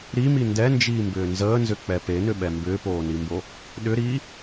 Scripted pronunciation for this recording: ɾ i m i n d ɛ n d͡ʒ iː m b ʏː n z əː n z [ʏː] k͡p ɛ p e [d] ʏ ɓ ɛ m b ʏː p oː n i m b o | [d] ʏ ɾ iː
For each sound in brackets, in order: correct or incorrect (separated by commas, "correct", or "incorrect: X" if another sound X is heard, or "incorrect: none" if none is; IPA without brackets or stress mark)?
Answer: incorrect: ʏ, incorrect: n, incorrect: ɗ